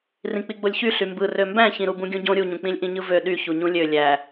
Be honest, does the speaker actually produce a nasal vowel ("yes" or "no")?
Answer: yes